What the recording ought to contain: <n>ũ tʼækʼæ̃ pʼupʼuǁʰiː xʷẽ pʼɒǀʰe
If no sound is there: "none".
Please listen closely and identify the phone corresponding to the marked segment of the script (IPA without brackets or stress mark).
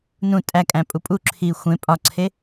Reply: n